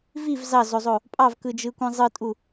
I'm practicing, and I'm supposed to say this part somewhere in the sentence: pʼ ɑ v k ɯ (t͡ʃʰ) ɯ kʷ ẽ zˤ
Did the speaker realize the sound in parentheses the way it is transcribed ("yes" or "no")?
no